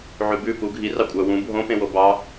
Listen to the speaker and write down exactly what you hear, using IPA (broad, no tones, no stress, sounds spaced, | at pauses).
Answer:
ʕ ʉ b ʉ p u ɡʱ i r ɑ kʷʼ œ w ũ bʱ õ p ẽ w o b ɑ